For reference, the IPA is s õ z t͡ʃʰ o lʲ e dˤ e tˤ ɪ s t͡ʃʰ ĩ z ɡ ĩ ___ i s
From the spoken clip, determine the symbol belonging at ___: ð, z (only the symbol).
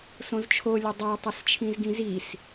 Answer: z